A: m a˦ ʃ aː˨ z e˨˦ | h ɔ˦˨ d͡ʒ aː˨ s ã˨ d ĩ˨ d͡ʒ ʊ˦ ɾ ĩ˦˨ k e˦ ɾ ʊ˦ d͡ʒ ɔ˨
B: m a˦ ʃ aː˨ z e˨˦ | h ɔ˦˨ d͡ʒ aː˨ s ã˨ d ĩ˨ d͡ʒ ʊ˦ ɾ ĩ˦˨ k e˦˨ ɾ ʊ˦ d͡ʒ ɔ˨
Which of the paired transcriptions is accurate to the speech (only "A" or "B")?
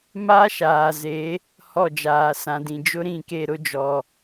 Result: B